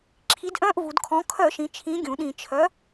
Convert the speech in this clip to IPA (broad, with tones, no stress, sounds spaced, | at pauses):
ǁʰ i˨˥ d ʔ œ̃˧˥˧ ʔ v u˩˧ d kʰ ɔ̃˨˥ kʰ œ˧˩˧ ʃ ĩ˩˧ t͡ʃʰ ĩ˨˥ ɡʲ ũ˩˧ ɗ ĩ˧˩˧ t͡ʃʰ œ˨˥